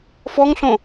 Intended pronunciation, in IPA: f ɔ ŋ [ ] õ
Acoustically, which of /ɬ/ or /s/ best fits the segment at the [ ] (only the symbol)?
ɬ